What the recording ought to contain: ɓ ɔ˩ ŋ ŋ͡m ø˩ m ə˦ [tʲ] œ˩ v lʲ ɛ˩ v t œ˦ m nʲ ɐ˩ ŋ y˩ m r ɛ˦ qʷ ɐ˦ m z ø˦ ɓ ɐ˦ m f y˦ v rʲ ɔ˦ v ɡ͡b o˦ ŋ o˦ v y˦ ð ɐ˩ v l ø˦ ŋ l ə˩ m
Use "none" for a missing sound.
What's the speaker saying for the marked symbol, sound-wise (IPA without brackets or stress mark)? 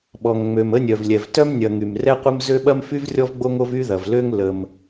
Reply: nʲ